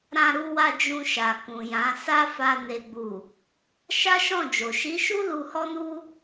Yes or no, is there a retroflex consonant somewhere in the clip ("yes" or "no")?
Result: no